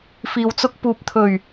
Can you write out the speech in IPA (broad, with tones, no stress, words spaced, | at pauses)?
fiː˨wt͡sʊ˧k̚ puː˨p̚t̪ʰɵ˨˩ɥ